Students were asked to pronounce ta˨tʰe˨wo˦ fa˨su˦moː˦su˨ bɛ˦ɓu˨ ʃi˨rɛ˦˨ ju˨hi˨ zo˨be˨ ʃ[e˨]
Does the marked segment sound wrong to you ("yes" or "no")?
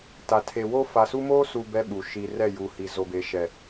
yes